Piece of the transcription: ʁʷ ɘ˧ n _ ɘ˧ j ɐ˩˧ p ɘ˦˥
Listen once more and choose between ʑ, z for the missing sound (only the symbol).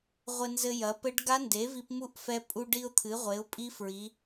z